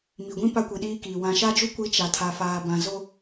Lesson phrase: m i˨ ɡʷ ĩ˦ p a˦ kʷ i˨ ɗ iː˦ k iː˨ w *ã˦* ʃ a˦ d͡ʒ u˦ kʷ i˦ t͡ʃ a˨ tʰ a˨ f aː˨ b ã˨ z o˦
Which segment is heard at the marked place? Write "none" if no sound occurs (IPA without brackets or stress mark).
ã˨